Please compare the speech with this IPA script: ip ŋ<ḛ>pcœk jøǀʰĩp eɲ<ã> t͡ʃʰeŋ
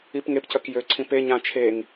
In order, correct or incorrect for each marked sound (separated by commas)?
incorrect, correct